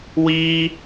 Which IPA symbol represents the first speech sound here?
w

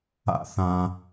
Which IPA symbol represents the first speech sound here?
a̰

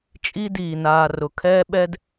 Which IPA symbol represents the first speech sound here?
t͡ʃʼ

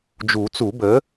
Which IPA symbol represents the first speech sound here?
d͡ʒ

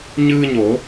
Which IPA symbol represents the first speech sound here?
ɲ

